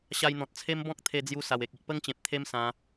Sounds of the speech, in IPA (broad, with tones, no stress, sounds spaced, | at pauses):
ɕ a˧ j n̪ ɔ̃˨ t̚ t͡sʰ e˦ m b ɔ̃˦ k̚ t̪ʰ e˧ d͡z j u˧ s a˨˩ w e˨ k̚ i˨ ʔ p ə˦ ŋ t͡ɕ ẽ˨ p̚ t̪ʰ e˦ m s ã˧